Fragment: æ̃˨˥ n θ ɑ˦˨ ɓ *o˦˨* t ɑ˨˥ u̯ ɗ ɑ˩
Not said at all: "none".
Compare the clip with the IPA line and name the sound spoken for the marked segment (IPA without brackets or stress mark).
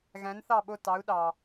o˦˨